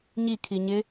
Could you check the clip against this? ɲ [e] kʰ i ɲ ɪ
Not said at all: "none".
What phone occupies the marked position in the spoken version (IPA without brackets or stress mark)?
i